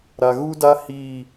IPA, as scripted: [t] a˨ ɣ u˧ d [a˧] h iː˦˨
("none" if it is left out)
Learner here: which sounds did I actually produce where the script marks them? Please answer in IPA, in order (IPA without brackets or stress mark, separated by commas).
ɾ, a˧